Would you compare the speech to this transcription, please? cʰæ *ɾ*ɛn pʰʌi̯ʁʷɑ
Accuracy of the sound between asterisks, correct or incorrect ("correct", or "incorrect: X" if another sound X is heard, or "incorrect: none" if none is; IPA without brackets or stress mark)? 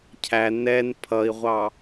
incorrect: n